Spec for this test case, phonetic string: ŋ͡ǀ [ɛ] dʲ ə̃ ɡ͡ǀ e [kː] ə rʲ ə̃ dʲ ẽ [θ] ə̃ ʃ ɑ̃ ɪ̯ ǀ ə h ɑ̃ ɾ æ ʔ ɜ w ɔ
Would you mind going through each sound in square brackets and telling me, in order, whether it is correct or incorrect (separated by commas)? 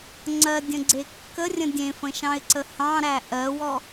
incorrect, correct, incorrect